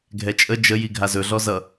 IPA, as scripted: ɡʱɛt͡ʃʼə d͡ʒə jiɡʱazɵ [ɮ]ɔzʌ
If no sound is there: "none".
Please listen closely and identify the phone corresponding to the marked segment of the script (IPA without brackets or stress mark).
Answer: ɮ